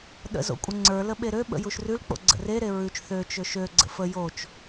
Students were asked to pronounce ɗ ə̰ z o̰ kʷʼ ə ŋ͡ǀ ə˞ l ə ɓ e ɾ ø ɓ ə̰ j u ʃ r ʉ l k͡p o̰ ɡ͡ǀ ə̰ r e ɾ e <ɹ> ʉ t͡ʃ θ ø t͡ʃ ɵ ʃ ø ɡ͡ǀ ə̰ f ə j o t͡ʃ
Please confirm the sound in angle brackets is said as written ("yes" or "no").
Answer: yes